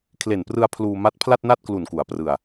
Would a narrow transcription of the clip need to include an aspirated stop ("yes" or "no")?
yes